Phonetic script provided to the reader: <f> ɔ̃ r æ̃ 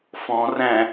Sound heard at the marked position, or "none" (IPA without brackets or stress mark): f